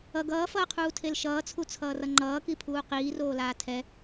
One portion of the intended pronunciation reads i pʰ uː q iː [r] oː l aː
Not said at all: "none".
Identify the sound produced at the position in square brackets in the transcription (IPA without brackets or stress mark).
r